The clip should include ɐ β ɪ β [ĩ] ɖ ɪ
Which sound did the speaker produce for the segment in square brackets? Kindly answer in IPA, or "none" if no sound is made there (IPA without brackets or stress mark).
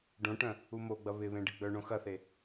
ẽ